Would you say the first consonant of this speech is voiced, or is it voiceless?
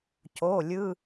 voiceless